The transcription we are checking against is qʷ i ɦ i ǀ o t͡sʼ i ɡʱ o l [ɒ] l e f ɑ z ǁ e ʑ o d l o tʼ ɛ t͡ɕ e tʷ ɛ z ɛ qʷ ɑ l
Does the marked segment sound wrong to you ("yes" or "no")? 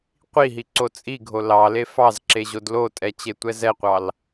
yes